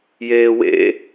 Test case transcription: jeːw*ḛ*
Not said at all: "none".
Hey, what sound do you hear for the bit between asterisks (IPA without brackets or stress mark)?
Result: ḛ